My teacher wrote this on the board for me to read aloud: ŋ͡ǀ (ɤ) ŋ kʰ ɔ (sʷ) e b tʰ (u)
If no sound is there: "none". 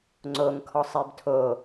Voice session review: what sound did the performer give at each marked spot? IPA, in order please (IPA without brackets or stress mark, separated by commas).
o, sˤ, o